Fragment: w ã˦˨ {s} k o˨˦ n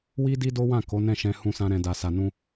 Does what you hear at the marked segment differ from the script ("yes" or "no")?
yes